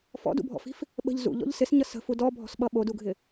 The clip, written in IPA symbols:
f ɔ̰ d ṵ bʱ ɔ̰ f i̤ f | ɓ ə̤ ʎ z ṵ ʎ ɔ̰ ʎ s ɪ s ɲ ʌ s ə̤ f u d ɔ bʱ ɔ̤ s ɓ ʌ ɓ o d u ɡʱ ɪ

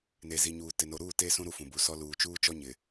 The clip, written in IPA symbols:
n e˨ z i˨ ɲ uː˨ t ɪ˨ n o˨ ɾ uː˦˨ t e˦ s ũ˦ ɾ u˦ f ũ˨ b u˨ s ɔ˦ l uː˨ t͡ʃ uː˦ t͡ʃ ɔ˦ ɲ ɪ˨

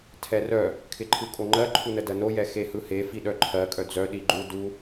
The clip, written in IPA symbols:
tʰ ɛ r œ | kʰ ɪ ǃʰ ɯ kʼ o ŋ͡ǃ ɜ ǃʰ u n ə d ɜ n o j ɛ x e h ɯ h e f i ɗ œ ǃʰ ɜ kʼ œ d͡z œ ɗ i ɡ͡ǃ u d u

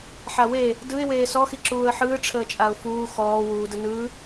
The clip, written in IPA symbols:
ħ a w eː | d ɯ ɪ̯ w eː s ɔ x i ǁ uː ə̯ ħ ɯː ʈ͡ʂʰ əː t͡ʃʼ a ʊ̯ f uː x ɔː w uː d ə n ɯː

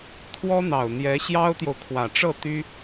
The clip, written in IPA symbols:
t̪ʰ w ɔ˥ n̪ ɑ˨˩ ʊ̯ n̪ j ɛ˧˥ ɕ j ɑ˥ ʊ̯ t̪ j o˨ ʊ̯ kʰ w ä˨˩ ʈ͡ʂ ɤ˥˩ t̪ y˥

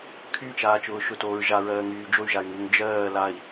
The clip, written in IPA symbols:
kʰ y t͡ʃ aː t͡ʃ ʊː ʃ ʊ t oː ɹ ʒ a ɹ ɜː ŋ yː d͡ʒ o y̯ ʒ a y̯ ŋ u ŋ d͡ʒ ɜː l a i̯

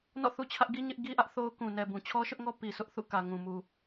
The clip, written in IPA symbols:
n ɔ̰˦˨ θ u˦ t͡ɕʰ ä˦ ʔ ɡ i˦ ɲ ɪ˦ ʔ ɡ i˦ ʔ ä˦ ʔ θ o˦ ʊ̯ k ũ˨ n ɛ˨ b ũ˨ t͡ɕʰ ɔ˦ ʃ ʊ˦ ʔ ŋ ɔ˦ p i˨ sʰ ʊ˦ ʔ θ ṵ˦˨ k ä˨ ŋ ũ˨ m u˨

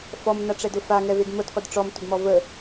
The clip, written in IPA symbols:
f ɔ m n a ʈ͡ʂ ɛ d ʊ f a ŋ ɛ v e d m ʊ d qʷ ə d ʈ͡ʂ ɔ m tʷ ə d m ɔ v ə

